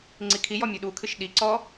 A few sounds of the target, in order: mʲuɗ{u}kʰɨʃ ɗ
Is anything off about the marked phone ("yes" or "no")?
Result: no